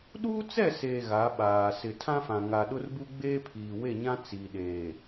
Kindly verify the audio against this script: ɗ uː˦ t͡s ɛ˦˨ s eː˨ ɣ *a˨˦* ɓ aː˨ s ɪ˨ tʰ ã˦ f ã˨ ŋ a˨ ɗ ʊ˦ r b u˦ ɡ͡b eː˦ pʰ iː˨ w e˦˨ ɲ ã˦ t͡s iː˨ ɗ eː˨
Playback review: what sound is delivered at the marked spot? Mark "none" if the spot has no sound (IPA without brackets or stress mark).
a˨˦